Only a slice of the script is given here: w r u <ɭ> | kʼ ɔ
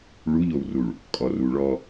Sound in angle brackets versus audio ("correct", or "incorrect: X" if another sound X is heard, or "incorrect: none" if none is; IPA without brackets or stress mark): correct